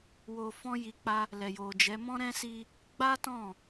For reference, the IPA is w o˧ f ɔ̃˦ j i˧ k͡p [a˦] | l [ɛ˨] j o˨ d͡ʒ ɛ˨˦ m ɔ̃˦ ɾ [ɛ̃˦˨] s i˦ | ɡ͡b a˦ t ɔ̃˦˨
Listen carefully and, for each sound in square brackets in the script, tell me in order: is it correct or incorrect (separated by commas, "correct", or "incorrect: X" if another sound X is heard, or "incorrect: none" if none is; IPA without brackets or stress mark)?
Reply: correct, correct, incorrect: ɛ̃˦